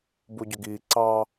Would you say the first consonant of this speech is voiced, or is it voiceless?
voiced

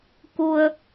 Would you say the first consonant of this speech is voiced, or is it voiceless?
voiceless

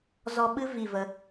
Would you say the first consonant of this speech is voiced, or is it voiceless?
voiced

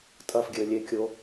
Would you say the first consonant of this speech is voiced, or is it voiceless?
voiceless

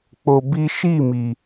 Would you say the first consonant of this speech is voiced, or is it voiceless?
voiceless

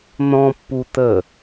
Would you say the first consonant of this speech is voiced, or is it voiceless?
voiced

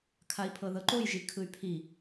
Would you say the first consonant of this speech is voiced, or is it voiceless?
voiceless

